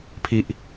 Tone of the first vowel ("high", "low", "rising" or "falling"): low